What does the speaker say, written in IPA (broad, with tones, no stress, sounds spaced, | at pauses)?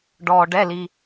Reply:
ɖ ɔː˧ ɖ ɛ˧˥˧ l i˧